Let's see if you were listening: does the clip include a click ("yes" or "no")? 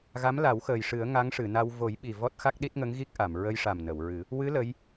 no